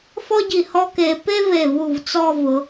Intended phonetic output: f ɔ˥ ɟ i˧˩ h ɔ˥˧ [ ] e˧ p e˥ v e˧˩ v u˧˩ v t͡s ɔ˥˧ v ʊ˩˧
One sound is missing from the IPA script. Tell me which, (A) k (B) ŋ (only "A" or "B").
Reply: A